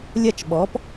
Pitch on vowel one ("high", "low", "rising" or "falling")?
falling